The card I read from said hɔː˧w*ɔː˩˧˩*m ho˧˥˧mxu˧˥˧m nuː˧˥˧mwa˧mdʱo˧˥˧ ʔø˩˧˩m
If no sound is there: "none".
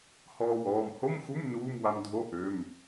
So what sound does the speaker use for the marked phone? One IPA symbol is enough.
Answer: ɔː˩˧˩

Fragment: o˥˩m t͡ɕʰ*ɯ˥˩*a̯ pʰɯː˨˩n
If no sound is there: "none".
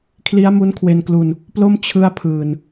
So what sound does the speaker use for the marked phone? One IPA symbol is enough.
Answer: ɯ˥˩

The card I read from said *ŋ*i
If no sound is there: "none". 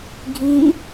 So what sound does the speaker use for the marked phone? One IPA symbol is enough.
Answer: ɡʱ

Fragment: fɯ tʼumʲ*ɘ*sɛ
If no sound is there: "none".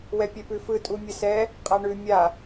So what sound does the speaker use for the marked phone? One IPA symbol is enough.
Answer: ɘ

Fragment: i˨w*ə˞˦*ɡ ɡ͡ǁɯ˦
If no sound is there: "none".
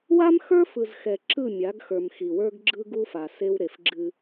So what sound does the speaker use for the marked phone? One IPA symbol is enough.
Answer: ə˞˦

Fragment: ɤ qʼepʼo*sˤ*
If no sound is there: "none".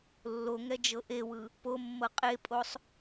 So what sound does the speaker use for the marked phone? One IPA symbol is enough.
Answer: sˤ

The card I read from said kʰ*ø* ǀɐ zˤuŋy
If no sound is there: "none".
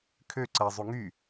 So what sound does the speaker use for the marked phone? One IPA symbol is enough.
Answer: ø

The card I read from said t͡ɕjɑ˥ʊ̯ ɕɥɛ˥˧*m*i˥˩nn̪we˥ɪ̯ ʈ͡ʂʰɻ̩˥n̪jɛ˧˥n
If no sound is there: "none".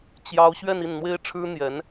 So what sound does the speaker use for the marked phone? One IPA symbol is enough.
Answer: n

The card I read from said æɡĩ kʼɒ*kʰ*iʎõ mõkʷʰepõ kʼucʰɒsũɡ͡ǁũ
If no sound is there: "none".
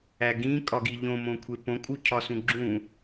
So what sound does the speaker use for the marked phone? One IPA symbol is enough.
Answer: ɡ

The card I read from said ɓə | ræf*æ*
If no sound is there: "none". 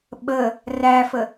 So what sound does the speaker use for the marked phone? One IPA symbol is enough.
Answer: ə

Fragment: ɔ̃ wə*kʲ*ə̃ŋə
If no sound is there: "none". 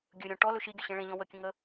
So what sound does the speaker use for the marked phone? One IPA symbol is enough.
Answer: kʲ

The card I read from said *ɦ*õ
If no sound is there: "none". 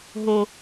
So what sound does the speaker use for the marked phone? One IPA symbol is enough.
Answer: ɦ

